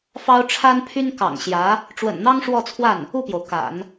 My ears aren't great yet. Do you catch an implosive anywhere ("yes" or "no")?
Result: no